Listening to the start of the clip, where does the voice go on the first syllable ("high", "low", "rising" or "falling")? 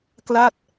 falling